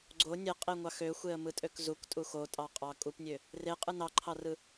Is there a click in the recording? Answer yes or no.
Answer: yes